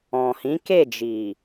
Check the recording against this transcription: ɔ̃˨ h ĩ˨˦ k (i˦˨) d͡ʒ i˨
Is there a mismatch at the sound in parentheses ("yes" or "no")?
yes